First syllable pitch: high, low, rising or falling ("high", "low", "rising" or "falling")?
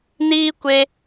high